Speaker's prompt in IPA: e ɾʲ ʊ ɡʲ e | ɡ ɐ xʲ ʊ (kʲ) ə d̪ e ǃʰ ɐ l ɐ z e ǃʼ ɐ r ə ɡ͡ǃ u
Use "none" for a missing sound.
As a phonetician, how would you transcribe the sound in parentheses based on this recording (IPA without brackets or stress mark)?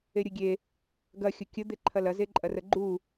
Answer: kʲ